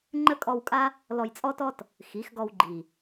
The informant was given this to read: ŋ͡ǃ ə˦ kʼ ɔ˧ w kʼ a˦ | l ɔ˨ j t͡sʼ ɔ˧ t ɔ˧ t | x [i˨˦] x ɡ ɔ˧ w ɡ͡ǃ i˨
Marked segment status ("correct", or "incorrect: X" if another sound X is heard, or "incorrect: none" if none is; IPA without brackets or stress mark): correct